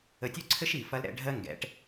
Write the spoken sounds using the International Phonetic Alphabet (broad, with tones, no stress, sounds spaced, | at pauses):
ə˧ tʲ ʉ˦ ǀʰ ɘ˦ ʃ i˨ f ɐ˧ l ɾ ɛ̰˧ ɖʱ ɜ˦ ŋ ɡ ɛ̰˨˦ ʈ